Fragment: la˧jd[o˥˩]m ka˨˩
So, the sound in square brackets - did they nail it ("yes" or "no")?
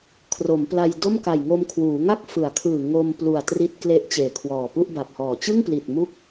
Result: yes